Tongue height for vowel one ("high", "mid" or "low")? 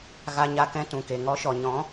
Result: low